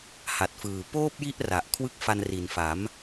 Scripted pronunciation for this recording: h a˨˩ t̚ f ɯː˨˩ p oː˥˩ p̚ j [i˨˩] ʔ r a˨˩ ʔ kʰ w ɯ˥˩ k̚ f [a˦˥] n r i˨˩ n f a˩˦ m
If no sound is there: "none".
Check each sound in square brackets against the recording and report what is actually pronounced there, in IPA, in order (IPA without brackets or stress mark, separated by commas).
i˦˥, a˧